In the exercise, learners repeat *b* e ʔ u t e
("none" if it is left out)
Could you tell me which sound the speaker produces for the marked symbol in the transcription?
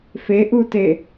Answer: f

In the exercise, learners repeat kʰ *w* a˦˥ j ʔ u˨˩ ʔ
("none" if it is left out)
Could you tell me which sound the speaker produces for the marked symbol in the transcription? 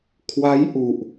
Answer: w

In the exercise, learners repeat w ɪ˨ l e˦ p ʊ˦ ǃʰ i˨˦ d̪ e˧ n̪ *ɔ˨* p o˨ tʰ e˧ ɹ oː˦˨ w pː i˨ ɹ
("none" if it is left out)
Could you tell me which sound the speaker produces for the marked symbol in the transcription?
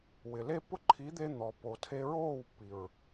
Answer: ɔ˨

